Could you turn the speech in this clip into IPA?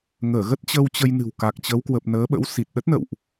ŋ əː˧˩ ɣ ə˦˥ t̚ t͡ɕ ə˧ w t͡ɕ ə˧ j n ɨ̤˨˩ w k a˨˩ k̚ t͡ɕ ə˨˦ w k w ə˨˩ p̚ n əː˨˦ ɓ ə̰˧˥ w s i˨˩ t̚ ɗ ə˦˥ t̚ n ə̰˧˨ w ʔ

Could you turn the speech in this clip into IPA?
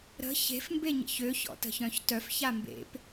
ɾ ə̤ ç e̤ f m b e ɲ ə̰ ç ø ç ɔ̰ t ə̤ ç œ̃ ç t œ f ç a m b ḛ p

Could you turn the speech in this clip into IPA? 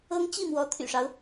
ɤ˥ ŋ t͡ɕ i˥˩ m w ɔ˧˥ t̪ʰ y̰˨˩ ʂ ɑ˦ ʊ̯

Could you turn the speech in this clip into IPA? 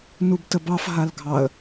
n u b t ə b ɑ f ɦ a l ɡʱ ɑ ə̯

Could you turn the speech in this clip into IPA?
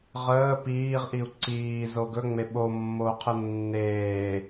ʁ əː p iː ʁ ʔ i u̯ ǀ iː z o ɡ ɵ ŋ͡m e ɓ o mː o qʰ ə nː eː

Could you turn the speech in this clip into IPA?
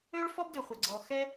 ø˥ ɭ f ɔ˥ b d ø˩ χʷ ɐ˩ ɡ͡ǀ ɔ˩ x ɛ˥

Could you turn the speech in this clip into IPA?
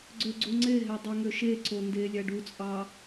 ɡ͡ǀ ø ɡ͡ǀ u ŋ͡ǀ e ɦ e dˤ o ŋ ø ʃ e ǀ o n d e lʲ æ ɖ u t͡sʼ ɑ

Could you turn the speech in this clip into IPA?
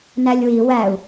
n æ lʲ w i w æ u̯

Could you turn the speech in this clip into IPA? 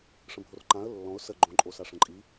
ʂ ə̃ bʱ o r ǃ ã ə̯ lː ɔ̃ ʊ̯ s ə ɡ͡ǃ õ ǃʼ o s a ʂ ə̃ ǃʼ i

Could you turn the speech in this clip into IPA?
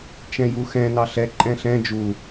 t͡ʃ ɛ̃ j u x ɛ̃ n ɑ ɬ ɛ ǃʼ ɛ̃ ɬ ɛ̃ d͡ʒ u

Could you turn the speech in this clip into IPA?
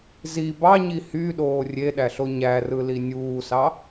z i b ɑ ɲ i h y ɗ oː rʲ e ɗ æ ɬ o ɲ æ r ɯ l i nʲ uː s ɑ

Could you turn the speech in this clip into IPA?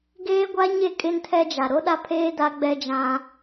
ɡ eː˦ ɡʷ a˦ ɲ e˦˨ kʼ ɪ˦ n tʰ ɛ˦ d͡ʒ a˨ ɾ o˦ ɗ a˦ pʰ eː˦ d a˦ ɡ͡b ɛ˦ d͡ʒ ã˦

